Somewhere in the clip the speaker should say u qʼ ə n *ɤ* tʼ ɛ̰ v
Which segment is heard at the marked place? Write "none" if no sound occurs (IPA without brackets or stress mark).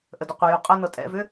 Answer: ɤ